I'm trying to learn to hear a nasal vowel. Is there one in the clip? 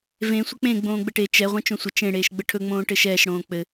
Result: yes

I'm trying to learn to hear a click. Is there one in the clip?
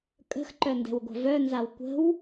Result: yes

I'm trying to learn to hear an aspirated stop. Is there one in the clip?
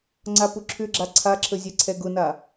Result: yes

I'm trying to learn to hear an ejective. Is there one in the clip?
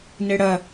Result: no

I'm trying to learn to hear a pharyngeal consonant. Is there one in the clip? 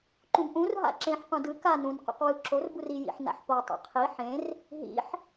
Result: yes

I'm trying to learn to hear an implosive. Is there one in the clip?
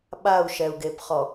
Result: yes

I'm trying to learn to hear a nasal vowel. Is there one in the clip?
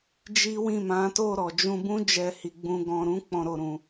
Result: yes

